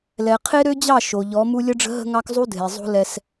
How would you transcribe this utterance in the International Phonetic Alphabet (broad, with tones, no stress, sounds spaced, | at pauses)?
l ɛ˨ qʰ e˦ ɾ ø˦ d͡ʑ ɑ˦˨ ʃ o˨ ʎ ɔ˨˦ m u˦ lʲ ʌ˦ ɖ͡ʐ ə̤˦ ɦ ə̤˦ ŋ ɑ˦ k zˤ u˦ dʱ e˨ zˤ o̤˦ l ɛ˦ s